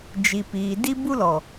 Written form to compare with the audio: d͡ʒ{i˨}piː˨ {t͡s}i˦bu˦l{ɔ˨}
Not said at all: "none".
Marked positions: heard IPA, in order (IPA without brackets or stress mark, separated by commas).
i˨, d, ɔ˨